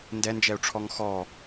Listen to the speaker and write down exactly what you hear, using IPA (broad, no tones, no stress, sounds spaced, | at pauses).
n d ɛ n d͡ʒ ɛ u̯ ʈ͡ʂʰ ɔ ŋ x ɔ